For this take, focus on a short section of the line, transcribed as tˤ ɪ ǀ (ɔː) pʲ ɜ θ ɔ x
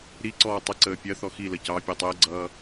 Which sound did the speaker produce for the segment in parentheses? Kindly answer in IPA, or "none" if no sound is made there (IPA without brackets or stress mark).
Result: əː